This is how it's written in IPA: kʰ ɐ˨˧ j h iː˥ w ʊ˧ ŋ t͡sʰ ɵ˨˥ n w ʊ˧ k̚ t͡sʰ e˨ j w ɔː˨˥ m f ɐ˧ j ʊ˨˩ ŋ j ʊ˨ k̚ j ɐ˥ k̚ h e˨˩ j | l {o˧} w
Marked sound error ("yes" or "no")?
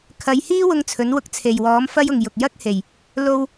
yes